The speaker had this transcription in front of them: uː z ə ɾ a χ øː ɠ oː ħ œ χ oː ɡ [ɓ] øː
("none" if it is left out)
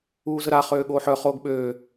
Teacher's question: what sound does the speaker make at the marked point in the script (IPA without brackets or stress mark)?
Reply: ɓ